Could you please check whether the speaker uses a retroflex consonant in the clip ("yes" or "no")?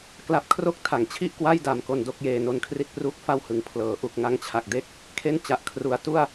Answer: no